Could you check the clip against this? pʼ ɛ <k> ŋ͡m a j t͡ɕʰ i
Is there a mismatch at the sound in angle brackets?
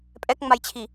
no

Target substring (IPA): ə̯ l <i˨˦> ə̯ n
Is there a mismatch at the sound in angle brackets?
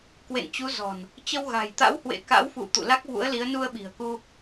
no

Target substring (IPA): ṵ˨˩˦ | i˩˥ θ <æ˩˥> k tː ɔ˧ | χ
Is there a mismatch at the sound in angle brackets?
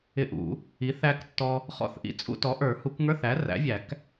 yes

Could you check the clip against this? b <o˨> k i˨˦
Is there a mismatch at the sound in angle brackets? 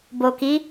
no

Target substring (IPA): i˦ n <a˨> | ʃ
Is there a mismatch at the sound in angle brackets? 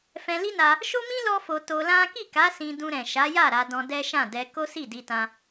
yes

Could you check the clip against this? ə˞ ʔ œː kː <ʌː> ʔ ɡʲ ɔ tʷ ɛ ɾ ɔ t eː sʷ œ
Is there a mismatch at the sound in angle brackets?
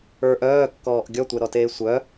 yes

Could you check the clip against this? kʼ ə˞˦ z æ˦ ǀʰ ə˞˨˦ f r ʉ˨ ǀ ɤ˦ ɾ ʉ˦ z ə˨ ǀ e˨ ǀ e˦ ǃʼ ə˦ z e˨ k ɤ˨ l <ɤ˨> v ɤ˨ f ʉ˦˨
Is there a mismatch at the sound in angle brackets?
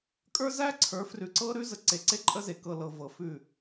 no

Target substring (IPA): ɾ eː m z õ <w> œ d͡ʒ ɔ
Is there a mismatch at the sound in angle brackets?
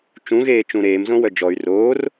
no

